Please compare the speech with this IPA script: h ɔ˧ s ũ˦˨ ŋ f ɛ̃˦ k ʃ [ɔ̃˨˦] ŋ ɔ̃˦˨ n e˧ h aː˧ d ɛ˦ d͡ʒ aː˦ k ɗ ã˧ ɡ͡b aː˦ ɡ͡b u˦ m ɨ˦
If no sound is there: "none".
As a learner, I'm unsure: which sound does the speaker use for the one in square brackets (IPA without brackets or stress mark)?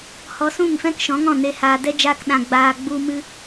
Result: ɔ̃˨˦